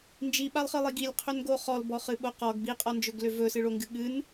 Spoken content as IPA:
n d͡ʒ i ɓ a lˠ χ ɨ lˠ i ɡ i lʲ qʰ ø n ɡ o χ ɔ l b ɔ χ ɨ ɓ o q ɔ ɡ b i qʼ ɔ n d͡ʒ ɵ ɡ l ø v ɵ s ɨ ɭ o ŋ ɡ ɨ ɠ ɨ n

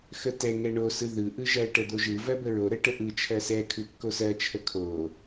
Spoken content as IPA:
x ə t ɛ ŋ ɛ ɳ o s ɯ ð ɯ ʔ ɯ ʒ ɜ ʈ ə d̪ o ʒ ɯ v ɜ b ə ɹ o ɾ ə ʈ ə ʔ ɯ t͡ʃʰ ɜ s ɛ kʰ ɯ kː o s ɜ t͡ʃʰ ə kʰ o

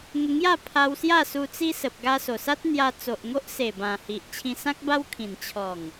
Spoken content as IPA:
ŋ ə˧ ŋ j a˥˧ pʰ a˧ w s j a˥˧ s u˧ t͡s i˦ s ə˨ p̚ ɡ a˧ s o˨˩ s a˦ t̚ n̪ j a˧ t͡s o˨ ʔ ŋ o˦ ʔ s e˨˩ b ã˨˩ h i˨ ʔ t͡ɕʰ ĩ˧ s ã˦ k̚ b a˦ w kʰ ĩ˨˩ n t͡ɕʰ ɔ˨˩ ŋ

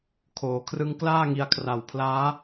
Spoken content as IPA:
kʰ oː˩˦ kʰ r ɯ˦˥ ŋ k l aː˥˩ ŋ i˧ a̯ kʰ r a˨˩ w pʰ l aː˦˥

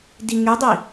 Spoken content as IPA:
d i ŋ y dˤ i

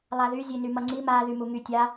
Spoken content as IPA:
lˠ a ð y zʲ e n y m ʌ ŋ͡ǀ i m a ð y m u ŋ y tʲ a

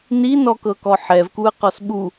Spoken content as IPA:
n i n ɔ k ɤ k ɔ ħ ɛ v k u ə̯ q ɔ s ɓ u

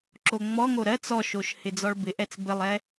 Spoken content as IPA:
ǁ o ŋ͡m ɔ ŋ o ɾ ɜ t͡s ɔ ʃ o ʃ h ɪ d͡z ɔ ɭ b ɪ ʔ ɛ t͡s b ɘ lˠ ɛ

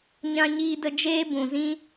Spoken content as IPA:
ɲ ã˦ ɲ iː˦ d ə˧ d͡ʒ eː˦ b ũ˨ z ĩ˦

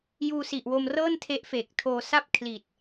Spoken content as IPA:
j uː˧ s i˨˩ ʔ w o˧ m r ɤː˥˩ n tʰ e˦˥ ʔ f eː˨˩ k̚ tʰ oː˧ s a˥˩ p̚ kʰ l i˨˩ t̚

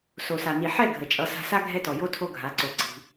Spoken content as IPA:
s o˨ s a˨ n i˨ ħ ɛ˦˨ ɡʱ ə˨ t͡ʃʼ ʌ˧ s a̤˧ s a˦ ɡʱ ɛ˦ t ɔ˨ j o˦ tʰ o˦ ɡʱ a˨˦ ǀ o˧ ǀ i̤˧

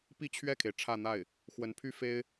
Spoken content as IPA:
p i˥ t͡ɕʰ ɥ ɛ˥˩ kʰ e˩ ɪ̯ ʈ͡ʂʰ ä˥˧ n̪ a˥˩ ɪ̯ | x w ə˧˥ n pʰ y˥ f e˥ ɪ̯

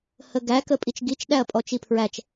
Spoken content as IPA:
h ə ɡ æ k ə pʼ i t͡ʃ ɡ i t͡ʃ ɗ æ ɐ̯ pʼ ɔ t͡ʃ i pʰ ɹ æ t͡ʃ

